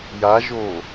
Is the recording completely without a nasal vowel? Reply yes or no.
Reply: yes